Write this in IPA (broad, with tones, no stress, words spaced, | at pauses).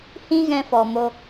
hĩ˦ɣɛ̃˧fɔ˨ mo˧